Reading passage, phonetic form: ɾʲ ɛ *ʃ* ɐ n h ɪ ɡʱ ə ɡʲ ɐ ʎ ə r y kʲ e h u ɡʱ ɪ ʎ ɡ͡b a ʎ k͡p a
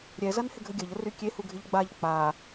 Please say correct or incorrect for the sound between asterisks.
incorrect